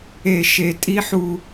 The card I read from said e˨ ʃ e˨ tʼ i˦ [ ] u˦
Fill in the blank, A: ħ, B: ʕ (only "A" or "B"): A